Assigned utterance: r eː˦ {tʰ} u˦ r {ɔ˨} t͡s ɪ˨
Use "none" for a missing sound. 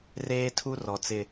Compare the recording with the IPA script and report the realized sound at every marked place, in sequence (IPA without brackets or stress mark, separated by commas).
tʰ, ɔ˨